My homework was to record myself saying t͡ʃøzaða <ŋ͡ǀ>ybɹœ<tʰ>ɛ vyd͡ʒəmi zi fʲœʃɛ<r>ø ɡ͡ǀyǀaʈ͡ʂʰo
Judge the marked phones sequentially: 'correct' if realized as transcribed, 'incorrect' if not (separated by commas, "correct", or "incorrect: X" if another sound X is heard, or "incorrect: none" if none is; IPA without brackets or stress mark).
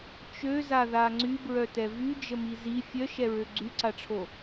correct, incorrect: t, incorrect: ɹ